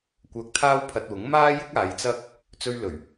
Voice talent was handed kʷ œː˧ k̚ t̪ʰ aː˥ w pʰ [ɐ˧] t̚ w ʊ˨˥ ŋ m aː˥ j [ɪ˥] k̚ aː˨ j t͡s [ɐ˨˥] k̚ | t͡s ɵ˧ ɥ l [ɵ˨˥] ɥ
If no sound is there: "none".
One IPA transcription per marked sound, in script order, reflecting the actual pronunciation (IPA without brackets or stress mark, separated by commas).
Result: ɐ˧, ɪ˥, ɐ˥, ɵ˨˩